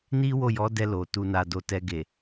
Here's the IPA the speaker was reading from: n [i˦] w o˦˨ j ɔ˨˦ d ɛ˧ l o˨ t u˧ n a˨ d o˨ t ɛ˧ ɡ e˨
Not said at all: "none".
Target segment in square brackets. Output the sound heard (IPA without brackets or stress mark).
i˦